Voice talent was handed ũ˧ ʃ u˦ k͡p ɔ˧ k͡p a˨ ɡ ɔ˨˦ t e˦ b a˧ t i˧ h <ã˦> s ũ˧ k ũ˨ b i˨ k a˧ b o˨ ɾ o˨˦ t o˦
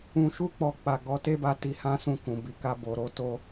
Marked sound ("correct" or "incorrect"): correct